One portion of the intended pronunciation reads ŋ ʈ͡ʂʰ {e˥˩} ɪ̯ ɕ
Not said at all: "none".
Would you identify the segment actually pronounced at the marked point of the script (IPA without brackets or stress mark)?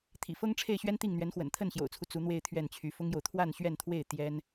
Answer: e˥˩